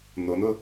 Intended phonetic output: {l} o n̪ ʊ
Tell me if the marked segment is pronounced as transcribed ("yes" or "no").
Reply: no